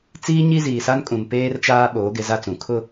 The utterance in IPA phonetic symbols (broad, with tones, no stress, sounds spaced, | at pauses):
t͡s iː˦ ɲ i˦ z iː˨ s a˦ n kʼ ũ˨ m p eː˦ r t͡ʃ aː˦ ɓ oː˨˦ ɡ ɪ˨˦ z a˦ t͡s ũ˨ kʰ ʊ˦